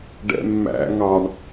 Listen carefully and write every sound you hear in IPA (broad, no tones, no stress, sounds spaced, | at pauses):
ɖ ɛ̰ mː æ̰ ŋ ɑ ɳ